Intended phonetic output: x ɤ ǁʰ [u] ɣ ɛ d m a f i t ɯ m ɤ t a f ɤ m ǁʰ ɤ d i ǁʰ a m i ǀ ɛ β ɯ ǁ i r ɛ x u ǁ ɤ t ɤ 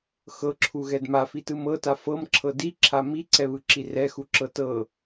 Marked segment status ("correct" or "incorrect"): correct